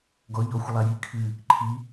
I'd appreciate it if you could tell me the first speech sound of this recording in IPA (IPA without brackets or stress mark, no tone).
ɡ